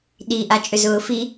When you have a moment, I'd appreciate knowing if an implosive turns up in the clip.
yes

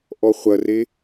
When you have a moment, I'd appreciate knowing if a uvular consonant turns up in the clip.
yes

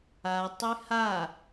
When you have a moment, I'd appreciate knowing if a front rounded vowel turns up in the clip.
yes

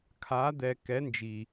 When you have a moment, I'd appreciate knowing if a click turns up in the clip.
no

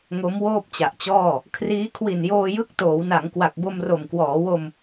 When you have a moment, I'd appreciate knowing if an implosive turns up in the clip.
no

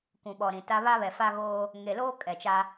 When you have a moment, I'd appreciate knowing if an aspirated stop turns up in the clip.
no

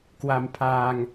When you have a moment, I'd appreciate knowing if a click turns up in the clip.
no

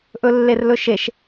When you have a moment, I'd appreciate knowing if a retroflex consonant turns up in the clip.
no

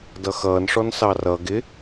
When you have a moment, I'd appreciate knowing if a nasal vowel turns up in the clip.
no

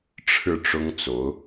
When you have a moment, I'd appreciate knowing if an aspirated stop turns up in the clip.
yes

